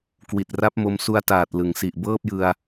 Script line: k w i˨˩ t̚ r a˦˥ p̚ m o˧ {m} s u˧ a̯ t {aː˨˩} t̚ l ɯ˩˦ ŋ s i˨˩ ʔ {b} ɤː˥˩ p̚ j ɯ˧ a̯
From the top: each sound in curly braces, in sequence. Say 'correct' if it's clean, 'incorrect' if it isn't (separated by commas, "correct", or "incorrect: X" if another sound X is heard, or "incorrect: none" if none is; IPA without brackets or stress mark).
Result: correct, correct, correct